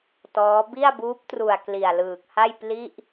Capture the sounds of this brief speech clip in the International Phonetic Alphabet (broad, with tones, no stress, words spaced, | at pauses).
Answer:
tɔː˦˥ bi˥˩a̯ buː˦˥p̚tru˨˩a̯ kli˨˩a̯lɯː˨˩k̚ha˥˩j pli˥˩ʔ